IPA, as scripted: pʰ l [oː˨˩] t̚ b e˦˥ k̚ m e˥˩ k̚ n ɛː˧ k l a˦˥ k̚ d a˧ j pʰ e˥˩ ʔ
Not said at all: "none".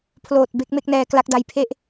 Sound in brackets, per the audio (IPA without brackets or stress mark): oː˨˩